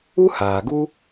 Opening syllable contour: high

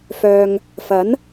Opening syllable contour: low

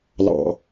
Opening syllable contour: low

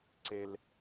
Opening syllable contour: high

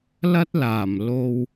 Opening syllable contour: high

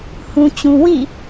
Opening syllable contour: low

